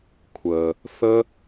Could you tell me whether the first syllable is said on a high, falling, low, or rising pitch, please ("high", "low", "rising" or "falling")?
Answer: low